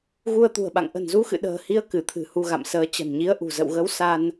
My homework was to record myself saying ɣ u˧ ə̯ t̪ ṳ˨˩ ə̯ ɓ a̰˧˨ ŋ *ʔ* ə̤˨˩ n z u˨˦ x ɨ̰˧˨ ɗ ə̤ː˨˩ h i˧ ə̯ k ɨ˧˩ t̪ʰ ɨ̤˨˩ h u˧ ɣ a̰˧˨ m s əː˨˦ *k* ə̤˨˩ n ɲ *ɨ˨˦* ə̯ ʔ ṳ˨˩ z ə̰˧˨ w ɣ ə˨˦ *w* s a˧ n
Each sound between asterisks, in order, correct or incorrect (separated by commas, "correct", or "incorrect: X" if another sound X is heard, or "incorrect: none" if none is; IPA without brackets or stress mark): correct, incorrect: t͡ɕ, incorrect: i˨˦, correct